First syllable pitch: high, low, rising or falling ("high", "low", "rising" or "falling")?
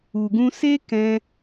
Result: low